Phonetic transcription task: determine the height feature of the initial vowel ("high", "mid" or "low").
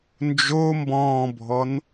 mid